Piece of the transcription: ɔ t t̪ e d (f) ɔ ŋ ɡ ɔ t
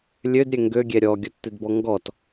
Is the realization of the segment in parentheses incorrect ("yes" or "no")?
yes